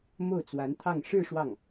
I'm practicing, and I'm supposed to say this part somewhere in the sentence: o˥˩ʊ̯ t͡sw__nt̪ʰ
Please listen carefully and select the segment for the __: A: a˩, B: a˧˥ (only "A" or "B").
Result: B